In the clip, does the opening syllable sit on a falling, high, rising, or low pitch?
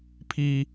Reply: high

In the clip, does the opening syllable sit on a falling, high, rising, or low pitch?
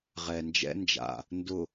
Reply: low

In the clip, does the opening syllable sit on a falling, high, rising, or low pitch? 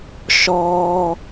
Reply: high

